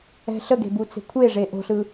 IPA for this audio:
ɛ̤ɬəɡe̤ but͡se̤kʷʰeʐe ʔo̤ɬɯ

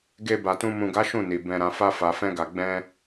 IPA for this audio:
ɡe˧ba˨tũ˧ mũ˨ɡa˨˦ ʃũ˦˨ni˨ bɛ̃˨ɾã˨fa˧ fa˨fɛ̃˧ɡa˨ ɡ͡bɛ̃˧

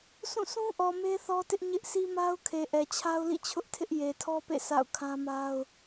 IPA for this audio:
sʰũ˦˨sʰũ˦ʔɔ˨ me˦θɔ˦tɪ˦ʔɲɪ˦ʔ sʰi˦ma˦ʊ̯kʰe˨ ʔɛ˨t͡ɕʰa˦ʊ̯lḭ˦˨t͡ɕʰʊ˦ʔ tʰɪ˦ʔje˨tʰɔ˦pḛ˦˨ sa̰˦˨ʊ̯kʰã˦ma˦ʊ̯

